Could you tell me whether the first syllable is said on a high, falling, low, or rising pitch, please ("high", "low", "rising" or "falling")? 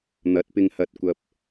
rising